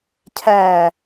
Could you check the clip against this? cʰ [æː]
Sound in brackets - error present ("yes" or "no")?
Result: no